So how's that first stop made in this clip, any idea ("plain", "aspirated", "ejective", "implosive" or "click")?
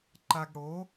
click